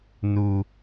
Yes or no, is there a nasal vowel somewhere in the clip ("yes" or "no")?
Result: no